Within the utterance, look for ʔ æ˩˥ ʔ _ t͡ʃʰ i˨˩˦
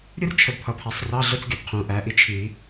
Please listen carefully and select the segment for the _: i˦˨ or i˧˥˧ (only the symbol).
i˦˨